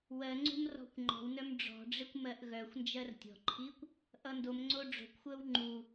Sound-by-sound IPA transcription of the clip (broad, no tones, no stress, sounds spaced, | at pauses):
w ɜ ŋ͡ǀ ṳ m r ɔ̤ kʷ ŋ͡ǃ ɔ̤ w n œ m ɖ͡ʐ ɔ̤ ɖ͡ʐ e kʷ m ɜ ʔ ɣ œ xʷ n d͡ʒ ɜ r tʲ ɔ̤ ǃʰ i kʷ | ʔ ʌ n d o m ŋ͡ǀ o ɖ͡ʐ o̤ kʷ xʷ ɜ w ŋ͡ǃ u